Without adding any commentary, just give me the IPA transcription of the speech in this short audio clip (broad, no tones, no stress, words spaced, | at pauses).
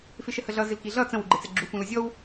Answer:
fɪʃəhəɮʌ zɪlkiɮʌ t͡sə̃w uɡ͡ǃɛt͡sɛɡ͡ǁu fũlʊzʲɔw